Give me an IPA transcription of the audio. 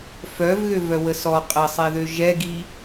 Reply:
f œ v ɣ ø v œ w ə s ɔ qʼ ə sˤ e ð ø ʒ ɛ ɡ i

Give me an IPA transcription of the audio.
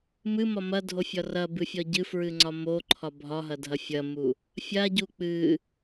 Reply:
m ɨ m ɒ m ɐ dʱ o fʲ ɒ r ɐ b ɨ fʲ ɒ ɟ ɨ f ɹ ɨ ŋ͡ǀ ɒ m o ǃʰ ɒ bʱ ɒ ɦ ɐ dʱ ɐ fʲ ɐ m u | fʲ a ɟ u k͡p ɨ

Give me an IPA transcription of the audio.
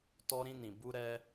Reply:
t ɔ˧ ɾ ĩ˧ n ĩ˨ b u˧ ɾ ɛ˧

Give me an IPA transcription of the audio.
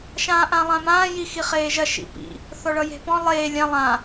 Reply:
ʃ ãː ʔ ã lˠ ã m ãː j i x i χ eː ʒ ɐ ʃ ḭ p ḭ | θ ɔ ɭ ʌ j e̤ p ɔ̃ lˠ eː lʲ ã lˠ ã

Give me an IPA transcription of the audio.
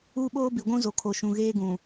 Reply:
uː˦ ɓ oː˦ b i˨ ɡʷ ũ˦ z o˨ kʰ o˨ ʃ ũ˨ ɣ eː˦ ɡ ũ˨

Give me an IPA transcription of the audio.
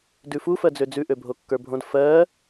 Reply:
d ʉ f u f ɜ d͡z ø d͡z ʉ ʔ ø bʱ o kː ə˞ bʱ õ d f ɜ

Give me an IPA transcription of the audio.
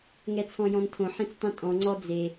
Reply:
ŋ ɛ t͡sʰ ɔ̃ j ɔ̃ n tʰ õ ħ ẽ t͡s tˤ ĩ tʼ ɔ̃ ŋ͡ǀ ɔ d͡z e

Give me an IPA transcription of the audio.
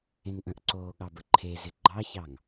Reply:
ẽ ŋ ʔ ə̃ ʔ ǀ oː ɠ ɑ b ə ǃʰ e z ɪ ɡ͡ǃ ɑ ç ɑ ŋ

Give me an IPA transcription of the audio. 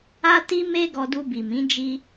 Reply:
a˧ t i˧ m e˧ ɡ ɔ˧ d u˧ b i˨ m ĩ˨˦ d͡ʒ i˧

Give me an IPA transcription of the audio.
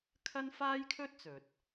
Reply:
kʰ ɐ˥ n f aː˥ j kʰ ɵ˥ t̚ t͡s ɵ˨ t̚

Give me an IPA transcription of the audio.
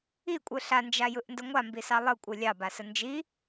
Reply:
i kʷʼ ɯ ɬ a n d͡ʒ a j ɯ ʔ n d ə ŋʷ a m b i s ɑ lˠ ɯ kʷʼ ɯ lʲ ɑ b a s ə n d͡ʒ i

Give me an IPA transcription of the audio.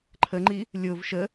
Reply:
ǃʰ ə ŋ͡ǃ i | lʲ ʊ v ʃ ə

